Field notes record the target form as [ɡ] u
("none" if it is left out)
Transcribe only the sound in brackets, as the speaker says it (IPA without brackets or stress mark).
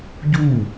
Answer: ɟ